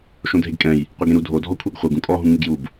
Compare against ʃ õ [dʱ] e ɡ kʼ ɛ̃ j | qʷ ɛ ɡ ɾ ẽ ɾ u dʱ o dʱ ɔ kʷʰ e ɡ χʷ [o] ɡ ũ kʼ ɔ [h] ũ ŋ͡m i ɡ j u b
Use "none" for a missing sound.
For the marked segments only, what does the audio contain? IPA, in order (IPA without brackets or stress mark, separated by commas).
dʱ, ɤ, ɦ